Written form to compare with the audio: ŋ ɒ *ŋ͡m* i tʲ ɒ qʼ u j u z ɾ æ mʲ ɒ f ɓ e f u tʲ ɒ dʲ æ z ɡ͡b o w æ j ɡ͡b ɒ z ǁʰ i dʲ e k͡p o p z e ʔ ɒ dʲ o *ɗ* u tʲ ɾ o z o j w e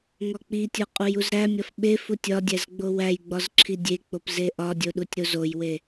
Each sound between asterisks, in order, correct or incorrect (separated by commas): incorrect, correct